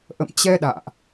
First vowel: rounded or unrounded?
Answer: unrounded